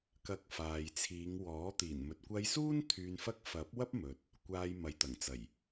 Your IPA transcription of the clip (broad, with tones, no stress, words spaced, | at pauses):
kɐ˧k̚faː˨jt͡sʰiː˨˧ŋwɔː˨˥ t̪iː˨˩nmɵ˨t̚kʷɐ˧jsuː˥n t̪ʰyː˧nfɐ˥k̚ fɐ˨˥p̚ wɐ˥p̚mɵ˨t̚ | kʷaː˧jmɐ˨˧jt̪ɐ˨˩ŋt͡sɐ˨˩j